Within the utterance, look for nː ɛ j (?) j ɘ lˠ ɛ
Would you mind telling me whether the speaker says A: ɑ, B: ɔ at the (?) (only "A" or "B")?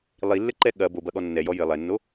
B